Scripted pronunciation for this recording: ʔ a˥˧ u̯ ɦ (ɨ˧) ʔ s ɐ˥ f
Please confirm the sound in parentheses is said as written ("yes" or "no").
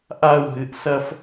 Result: yes